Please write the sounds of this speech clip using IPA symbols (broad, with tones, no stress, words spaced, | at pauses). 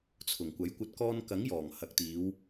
t͡sʰʊ˨˩ŋ kʷɐ˨˥jkʷɐ˧t̚ kɔː˧nkɐ˨˥ŋjɔː˨˩ŋ hɐ˨k̚t̪iː˨˧w